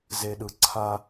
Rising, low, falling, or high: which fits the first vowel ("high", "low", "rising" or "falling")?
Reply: low